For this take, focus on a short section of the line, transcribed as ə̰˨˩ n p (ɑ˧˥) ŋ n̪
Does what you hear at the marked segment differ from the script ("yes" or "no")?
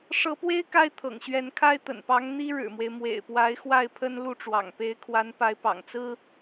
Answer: no